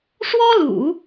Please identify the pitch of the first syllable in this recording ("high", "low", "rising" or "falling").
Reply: high